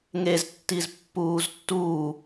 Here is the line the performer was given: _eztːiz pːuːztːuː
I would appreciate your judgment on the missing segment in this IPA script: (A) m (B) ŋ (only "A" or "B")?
B